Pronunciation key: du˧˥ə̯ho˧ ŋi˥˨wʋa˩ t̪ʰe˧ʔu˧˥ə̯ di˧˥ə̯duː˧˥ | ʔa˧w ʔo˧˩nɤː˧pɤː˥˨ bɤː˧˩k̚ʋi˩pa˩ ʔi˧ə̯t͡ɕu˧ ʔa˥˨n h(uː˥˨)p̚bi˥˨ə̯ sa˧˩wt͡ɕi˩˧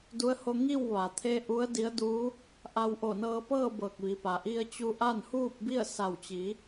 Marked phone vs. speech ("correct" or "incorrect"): correct